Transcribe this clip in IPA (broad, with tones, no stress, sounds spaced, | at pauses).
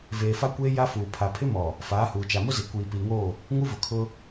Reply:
v eː˨ f a˦ kʷ eː˦ j a˦ f uː˨ pʰ a˨ pʰ ɪ˦ m ɔ˨ | f aː˨˦ h uː˨ t͡ʃ a˨ m ʊ˦ z e˨ kʷ iː˨ p iː˨ ŋ oː˦˨ | ŋ u˦ v ʊ˨ kʰ ʊ˦